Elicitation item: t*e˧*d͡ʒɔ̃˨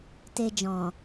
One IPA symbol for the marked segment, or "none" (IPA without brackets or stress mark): e˧